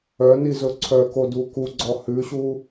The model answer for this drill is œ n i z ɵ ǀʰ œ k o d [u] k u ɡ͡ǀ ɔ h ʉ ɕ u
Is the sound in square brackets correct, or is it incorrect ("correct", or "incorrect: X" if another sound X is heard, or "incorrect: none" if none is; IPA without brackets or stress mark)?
correct